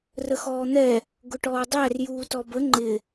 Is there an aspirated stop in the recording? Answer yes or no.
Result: no